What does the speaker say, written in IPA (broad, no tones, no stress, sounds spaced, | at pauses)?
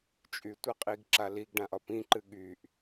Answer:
t͡ʃʼ y tʷ a qʼ i ɡ ǁ a l i ɡ ɖ ã ʔ ɒ p ĩ ǃ ɨ ɠ y ʔ